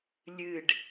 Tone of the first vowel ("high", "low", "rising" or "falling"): falling